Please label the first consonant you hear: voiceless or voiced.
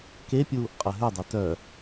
voiceless